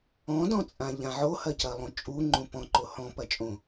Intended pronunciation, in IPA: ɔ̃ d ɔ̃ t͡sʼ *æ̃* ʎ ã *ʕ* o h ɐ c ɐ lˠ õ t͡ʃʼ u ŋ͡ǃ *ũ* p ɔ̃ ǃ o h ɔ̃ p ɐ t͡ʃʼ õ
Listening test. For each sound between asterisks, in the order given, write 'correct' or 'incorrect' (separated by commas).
incorrect, correct, correct